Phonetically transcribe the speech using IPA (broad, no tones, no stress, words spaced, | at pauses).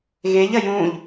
ɣeʎɐ jũʎ